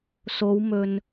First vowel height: mid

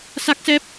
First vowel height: low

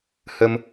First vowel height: mid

